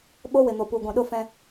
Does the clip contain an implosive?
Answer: yes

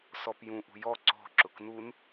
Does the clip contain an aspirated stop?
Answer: no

